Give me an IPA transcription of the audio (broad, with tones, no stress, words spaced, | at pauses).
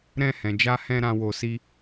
ɾɛ̃˧hɛ̃˨d͡ʒa˧hɛ̃˧ ɾã˦wo˧si˦